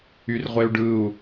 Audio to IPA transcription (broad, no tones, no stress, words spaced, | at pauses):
yrʁʷeu̯ɖɯu̯